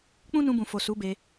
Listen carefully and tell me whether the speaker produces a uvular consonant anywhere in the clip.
no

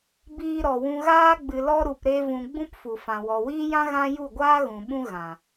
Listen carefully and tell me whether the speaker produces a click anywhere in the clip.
no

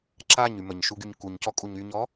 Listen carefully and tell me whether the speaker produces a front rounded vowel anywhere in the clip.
yes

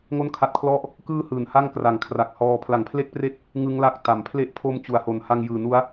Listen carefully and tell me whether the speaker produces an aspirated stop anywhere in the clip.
yes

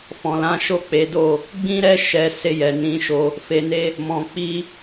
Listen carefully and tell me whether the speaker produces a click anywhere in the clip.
no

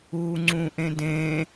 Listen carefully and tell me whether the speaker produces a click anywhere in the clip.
yes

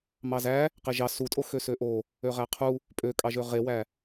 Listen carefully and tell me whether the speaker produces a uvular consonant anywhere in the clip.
yes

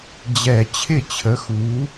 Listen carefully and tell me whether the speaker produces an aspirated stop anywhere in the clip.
yes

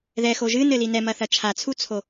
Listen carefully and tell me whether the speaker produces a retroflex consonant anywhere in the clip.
no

